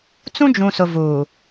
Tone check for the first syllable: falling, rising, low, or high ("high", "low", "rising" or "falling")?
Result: high